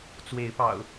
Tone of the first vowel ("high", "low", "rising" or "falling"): rising